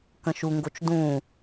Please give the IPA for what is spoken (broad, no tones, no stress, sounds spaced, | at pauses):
k ə̃ ʃ u ŋ ɡ o t͡ʃ d ũ